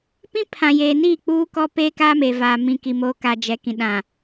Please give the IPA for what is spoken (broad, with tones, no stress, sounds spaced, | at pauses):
p ĩ˦ pʰ ã˨ j eː˨ n iː˦˨ k͡p uː˦ k ɔ˦ p eː˦ k aː˦ m eː˨ v aː˨ m ĩ˨ k i˨ m oː˨ k a˨ d͡ʒ ɛ˨ k ĩ˨ ɗ ã˨